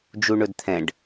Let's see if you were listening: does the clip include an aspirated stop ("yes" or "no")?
yes